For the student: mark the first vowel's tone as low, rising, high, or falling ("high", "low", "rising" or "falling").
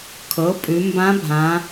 rising